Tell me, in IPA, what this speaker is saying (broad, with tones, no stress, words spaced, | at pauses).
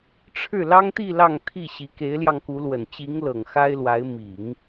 ʈ͡ʂʰɻ̩˥˩ lɑ˥ŋt̪i˥˧ lɑ˥˧ŋt̪ʰi˥˩ɕi˧˥ ke˧˥ɪ̯ljɑ˧ŋku˧˥lwə˨˩n t͡ɕi˧˥ŋlɤ˨˩ŋ xa˥ɪ̯lwa˧˥ɪ̯ mi˨˩˦ŋ